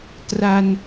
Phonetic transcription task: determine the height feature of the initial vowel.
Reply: low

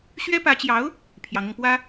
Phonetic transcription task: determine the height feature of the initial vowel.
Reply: mid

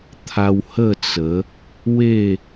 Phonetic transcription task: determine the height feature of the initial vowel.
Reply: low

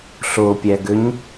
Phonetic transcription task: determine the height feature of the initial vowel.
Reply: mid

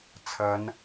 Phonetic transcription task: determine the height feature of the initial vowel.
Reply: low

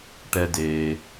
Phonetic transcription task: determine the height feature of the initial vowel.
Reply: mid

